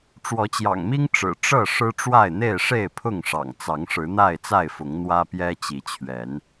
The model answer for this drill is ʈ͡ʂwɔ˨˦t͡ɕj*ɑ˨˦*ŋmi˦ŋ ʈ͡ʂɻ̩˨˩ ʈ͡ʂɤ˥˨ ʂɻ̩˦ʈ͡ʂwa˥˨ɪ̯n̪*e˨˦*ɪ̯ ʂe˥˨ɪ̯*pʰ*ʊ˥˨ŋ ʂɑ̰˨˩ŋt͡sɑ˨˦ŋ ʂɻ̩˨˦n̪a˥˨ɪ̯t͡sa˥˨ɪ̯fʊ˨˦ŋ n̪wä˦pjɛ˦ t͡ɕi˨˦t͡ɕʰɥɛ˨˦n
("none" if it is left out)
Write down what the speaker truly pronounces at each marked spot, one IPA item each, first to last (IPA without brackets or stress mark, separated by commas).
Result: ɑ̰˨˩, e˥˨, pʰ